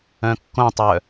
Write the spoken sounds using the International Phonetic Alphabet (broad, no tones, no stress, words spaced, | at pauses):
œ̃kːõtˤœ